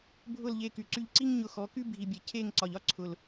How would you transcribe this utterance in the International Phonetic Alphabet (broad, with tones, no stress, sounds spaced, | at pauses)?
bʱ ʊ˦˨ l ʎ e˧ k y˨ ǀ y˧ ʎ ǀ i˦ ŋ ɲ ʊ˧ x ɔ˨˦ k y˦ bʱ i˨ bʲ e˨ cʰ e˦˨ ŋ ǀ ɒ˨ ʎ ɒ˦ ǀʰ ʊ˨ l